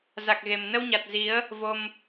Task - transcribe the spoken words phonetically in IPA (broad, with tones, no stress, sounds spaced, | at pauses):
z a˨˩ k̚ ɣ e˨˩ m n ə˧ w ɲ a˨˩ t̚ z i˨˦ ə̯ | v o˧ m